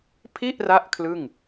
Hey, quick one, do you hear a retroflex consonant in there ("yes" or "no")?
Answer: no